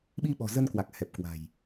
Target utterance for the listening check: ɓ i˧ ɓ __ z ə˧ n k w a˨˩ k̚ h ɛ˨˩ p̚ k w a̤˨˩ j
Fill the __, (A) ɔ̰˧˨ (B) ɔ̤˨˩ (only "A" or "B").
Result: B